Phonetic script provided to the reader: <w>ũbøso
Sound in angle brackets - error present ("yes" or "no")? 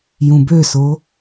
yes